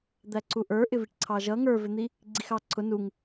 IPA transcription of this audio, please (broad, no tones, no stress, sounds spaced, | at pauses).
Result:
d̪ æ ǀ u ʔ ə˞ ʔ ɪ v i ʈ ǀʰ ɑ ʒ ʌ ŋ ə˞ v ɪ n̪ i | ɡ͡ǀ i x ɑ ǀʰ ʊ n u ŋ